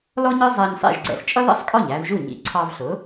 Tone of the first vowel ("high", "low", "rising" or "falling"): high